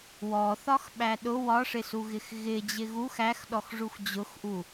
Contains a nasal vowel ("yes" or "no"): no